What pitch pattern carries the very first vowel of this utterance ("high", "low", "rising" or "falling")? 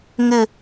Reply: falling